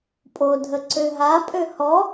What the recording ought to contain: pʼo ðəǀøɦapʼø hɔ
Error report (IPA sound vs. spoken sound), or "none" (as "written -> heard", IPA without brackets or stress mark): ð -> dʱ